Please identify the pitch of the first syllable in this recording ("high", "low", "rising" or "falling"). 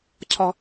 low